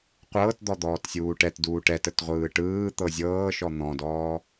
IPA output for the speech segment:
qʷ ɤː t d̪ ɔ d̪ ɔː t sʲ uː ʈ ɛ t d uː ʈ ɛ t ə t ʁʷ ɯː ʈ ɯː t̪ ɤ zʲ ɤː ʃ ɔ n̪ ɔ̃ d ɔː

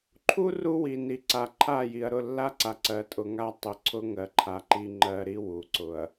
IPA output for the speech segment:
ǃʰ u˦ r u˦ w i˨ n i˨ ǀ a˨ ǃʰ a˦˨ j i˨ ɐ̯ ɾ ʊ˦˨ lː a˦ ǀ a˨ ǀ ɜ˨ tʼ ʊ˨ ŋ a˦ tˤ ʊ˦ ǀʰ ʊ˦ ŋ ɜ˨ ǃʰ a˨ ǃ i˨ ŋ͡ǃ ɜ˨ ɾ i˦ w u˨ ǀ ʊ˨ ɐ̯

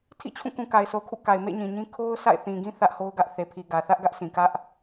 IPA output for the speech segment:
tʰ ḭ˦˨ t͡ɕʰ ũ˦˨ k ũ˨ k a˨ ɪ̯ sʰ o˨ kʰ ṵ˦˨ k a˨ ɪ̯ m ḛ˦˨ ɲ ĩ˨ ɲ ĩ˦ kʰ o˦ ʊ̯ sʰ a̰˦˨ ɪ̯ θ ĩ˨ ɡ ĩ˦ θ ä˦ ʔ h o˦ ʊ̯ ɡ ä˦ ʔ θ e˨ pʰ i˨ ɡ ä˨ θ ä˦ ʔ ɡ ä˦ ʔ sʰ ĩ˨ k ä˦ ʔ

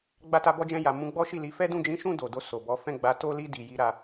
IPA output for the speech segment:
ɡ͡b a˧ t a˧ b ɔ˧ d͡ʒ ɛ̃˧ j a˨ m ũ˧ ɡ͡b ɔ˦ ʃ i˦˨ l i˨˦ f ɛ˦ d ũ˦˨ d͡ʒ ĩ˨˦ ʃ ũ˦˨ d o˨ d o˧ s o˨ b ɔ˨˦ f ɛ̃˦˨ ɡ͡b a˨˦ t o˦ l i˦ d i˧ j i˦ ɾ a˦

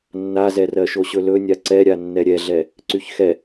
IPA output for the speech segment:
nː a z ɛ r ɜ ʃ o ɕ ɵ l ɵ nʲ a ǀ ɛ ɾʲ a nː ɛ ɾʲ ɛ ɮ ɛ | ǀ y ç x ɛ

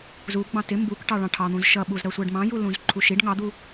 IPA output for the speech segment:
z u ɡ͡b ɑ̃ t ɪ m b u k ʈ ɑ ɭ ɑ̃ ʈʰ ɑ n̪ ũ z ʃ ʌ ɓ u z ɾ ʌ sʷ ɜ ɖ m ɑ̃ j u l ũ z ǃʰ u ʃ i ɖ ŋ ɑ d̪ u

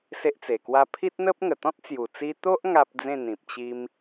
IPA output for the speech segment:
s e˦ ʔ t͡s e˨˩ k w a˦ pʰ i˦ t̚ n̪ ə˦ p̚ ŋ ə˨˩ t̪ ɔ̃˦ t̚ t͡s j u˨˩ t͡s i˧ t̪ o˦ ʔ ŋ a˦ p̚ d͡z ẽ˥˧ n̪ ĩ˨ p̚ t͡ɕ i˦ m

